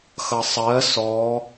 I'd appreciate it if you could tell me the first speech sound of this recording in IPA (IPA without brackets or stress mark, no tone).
x